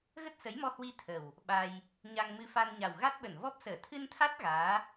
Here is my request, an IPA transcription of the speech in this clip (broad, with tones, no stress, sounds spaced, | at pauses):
ɣ ə˦˥ t̚ s ə˨˦ j m ɔ˧ h w i˧ t̪ʰ ə˨˩ w | ɓ a˧ j | ɲ a˧ ŋ m ɨ˧ f a˧ n ɲ a˨˩ w ɣ a˦˥ t̚ ɓ ə˧˩ n v ɔ˦˥ p̚ s əː˧˩ t̪ʰ ɨ˧ n t̪ʰ a˦˥ t̚ ɣ aː˨˦